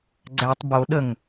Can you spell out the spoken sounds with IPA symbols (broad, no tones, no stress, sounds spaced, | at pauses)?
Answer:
ɡ͡ǀ æ tˤ b o ɗ ə ŋ